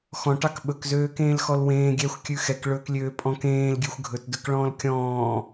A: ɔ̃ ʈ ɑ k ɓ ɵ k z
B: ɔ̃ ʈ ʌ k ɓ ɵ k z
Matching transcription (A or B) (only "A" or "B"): A